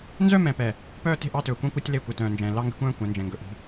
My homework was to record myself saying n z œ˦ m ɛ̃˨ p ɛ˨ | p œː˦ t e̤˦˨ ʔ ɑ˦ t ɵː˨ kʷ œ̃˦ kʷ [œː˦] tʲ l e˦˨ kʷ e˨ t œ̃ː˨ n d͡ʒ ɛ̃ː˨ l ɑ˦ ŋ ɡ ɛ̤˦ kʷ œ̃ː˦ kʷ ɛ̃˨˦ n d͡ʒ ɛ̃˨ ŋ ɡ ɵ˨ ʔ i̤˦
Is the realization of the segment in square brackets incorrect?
yes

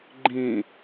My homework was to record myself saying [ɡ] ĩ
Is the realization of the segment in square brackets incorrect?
yes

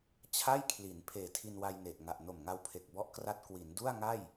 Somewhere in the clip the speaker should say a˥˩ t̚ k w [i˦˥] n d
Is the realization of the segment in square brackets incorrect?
yes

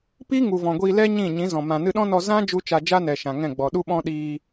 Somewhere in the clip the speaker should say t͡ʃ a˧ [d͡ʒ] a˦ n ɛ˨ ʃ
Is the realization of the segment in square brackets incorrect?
no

